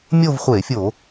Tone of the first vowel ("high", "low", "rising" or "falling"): falling